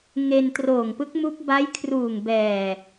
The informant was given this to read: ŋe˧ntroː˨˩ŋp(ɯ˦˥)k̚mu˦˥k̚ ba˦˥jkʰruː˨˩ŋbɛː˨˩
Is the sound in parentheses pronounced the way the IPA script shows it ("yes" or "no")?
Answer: yes